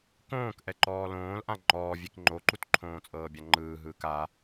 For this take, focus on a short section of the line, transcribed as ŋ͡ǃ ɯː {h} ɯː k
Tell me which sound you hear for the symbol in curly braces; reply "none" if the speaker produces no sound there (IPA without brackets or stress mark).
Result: ɦ